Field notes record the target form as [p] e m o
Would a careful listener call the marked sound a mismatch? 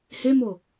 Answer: yes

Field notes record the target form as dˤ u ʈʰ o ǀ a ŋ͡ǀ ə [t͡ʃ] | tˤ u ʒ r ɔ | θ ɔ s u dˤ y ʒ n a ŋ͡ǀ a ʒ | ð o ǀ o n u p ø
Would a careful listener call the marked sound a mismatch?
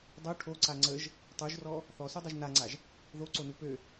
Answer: yes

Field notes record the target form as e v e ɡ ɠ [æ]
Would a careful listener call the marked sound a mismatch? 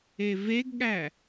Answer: no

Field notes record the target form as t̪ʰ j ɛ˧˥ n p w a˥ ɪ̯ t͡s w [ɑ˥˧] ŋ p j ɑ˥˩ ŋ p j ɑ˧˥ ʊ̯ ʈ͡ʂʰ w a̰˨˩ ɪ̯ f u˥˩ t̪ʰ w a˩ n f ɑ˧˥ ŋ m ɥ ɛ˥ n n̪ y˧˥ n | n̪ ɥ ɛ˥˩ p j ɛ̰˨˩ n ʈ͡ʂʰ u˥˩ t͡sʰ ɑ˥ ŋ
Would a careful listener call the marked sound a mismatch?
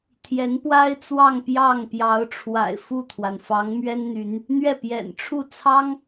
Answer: no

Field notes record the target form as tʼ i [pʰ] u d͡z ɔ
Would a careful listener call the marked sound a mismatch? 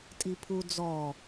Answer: no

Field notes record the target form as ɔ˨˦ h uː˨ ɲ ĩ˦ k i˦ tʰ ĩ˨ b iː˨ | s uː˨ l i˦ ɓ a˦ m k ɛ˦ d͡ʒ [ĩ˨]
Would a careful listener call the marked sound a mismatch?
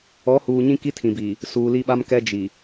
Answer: yes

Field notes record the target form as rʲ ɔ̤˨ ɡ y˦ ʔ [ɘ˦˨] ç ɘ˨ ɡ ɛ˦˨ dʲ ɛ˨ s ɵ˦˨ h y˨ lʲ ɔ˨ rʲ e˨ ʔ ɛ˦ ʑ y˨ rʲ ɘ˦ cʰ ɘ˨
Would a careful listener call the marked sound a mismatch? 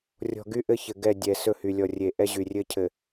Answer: yes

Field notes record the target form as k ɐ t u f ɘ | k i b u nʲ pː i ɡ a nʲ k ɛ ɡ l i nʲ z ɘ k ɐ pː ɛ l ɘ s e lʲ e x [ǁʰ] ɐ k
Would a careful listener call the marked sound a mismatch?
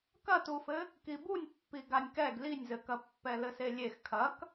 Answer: yes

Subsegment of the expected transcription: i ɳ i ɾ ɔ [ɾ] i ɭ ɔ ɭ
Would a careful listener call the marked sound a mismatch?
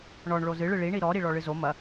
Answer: no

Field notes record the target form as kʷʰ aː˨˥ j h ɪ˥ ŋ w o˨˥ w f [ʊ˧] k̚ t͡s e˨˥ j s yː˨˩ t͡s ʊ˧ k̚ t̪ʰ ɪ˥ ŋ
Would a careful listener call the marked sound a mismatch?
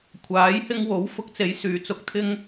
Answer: no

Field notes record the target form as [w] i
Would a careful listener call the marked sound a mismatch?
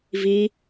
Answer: yes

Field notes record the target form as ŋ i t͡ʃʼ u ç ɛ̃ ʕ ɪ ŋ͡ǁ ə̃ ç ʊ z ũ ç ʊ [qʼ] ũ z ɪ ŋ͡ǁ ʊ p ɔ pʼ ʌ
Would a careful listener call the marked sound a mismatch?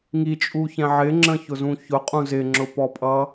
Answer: no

